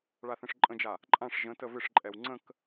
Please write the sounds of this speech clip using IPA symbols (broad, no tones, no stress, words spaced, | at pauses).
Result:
ɭaθə̃ʂǃʼə̃d͡ʒa | ǃʼãʂ ʒə̃tə vɪʂǃʼɛw ŋ͡ǀə̃k